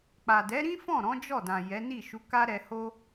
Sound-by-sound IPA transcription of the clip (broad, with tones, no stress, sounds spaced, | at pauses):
k͡p a˨ d ɛ˨˦ ɾ ĩ˦ f ɔ̃˦˨ ɾ ɔ̃˨˦ d͡ʒ ɔ˦˨ d ã˨ j ɛ˨˦ n i˦˨ ʃ u˨˦ k a˦ ɾ ɛ˧ h o˦